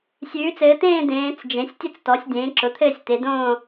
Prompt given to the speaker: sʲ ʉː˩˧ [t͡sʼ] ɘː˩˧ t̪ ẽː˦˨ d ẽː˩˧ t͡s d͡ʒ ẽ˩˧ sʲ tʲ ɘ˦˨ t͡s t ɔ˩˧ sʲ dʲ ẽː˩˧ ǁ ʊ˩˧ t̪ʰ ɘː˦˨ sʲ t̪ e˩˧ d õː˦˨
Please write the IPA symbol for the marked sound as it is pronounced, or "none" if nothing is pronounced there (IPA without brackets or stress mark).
t͡s